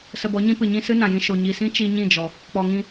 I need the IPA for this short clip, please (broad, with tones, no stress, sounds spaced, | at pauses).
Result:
s ə˧ b ɔ˨˦ ɲ ĩ˦ p ɨ˨ ɲ ĩ˧ s ɨ˦ n ã˨ j ĩ˧ ʃ o˨ ɲ i˨ s ĩ˦ t͡ʃ i˧ ɲ ĩ˦˨ d͡ʒ ɔ˨ | k͡p ɔ˨ ŋ ĩ˧